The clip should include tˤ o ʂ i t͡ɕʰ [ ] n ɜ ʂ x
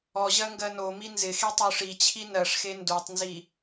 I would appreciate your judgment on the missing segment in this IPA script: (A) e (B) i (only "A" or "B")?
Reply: B